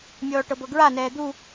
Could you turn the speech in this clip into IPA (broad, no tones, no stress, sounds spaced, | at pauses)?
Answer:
mʲ ɔː ʈ ɤ b ɤ ɡ ɹ a n ɛː d̪ u